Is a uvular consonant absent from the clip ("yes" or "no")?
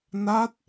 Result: yes